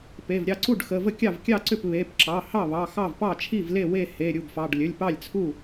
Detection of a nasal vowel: absent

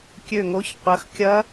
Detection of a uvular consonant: present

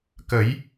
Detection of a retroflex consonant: absent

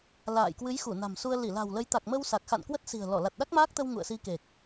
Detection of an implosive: present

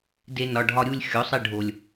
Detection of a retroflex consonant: present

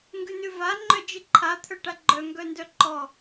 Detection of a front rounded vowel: present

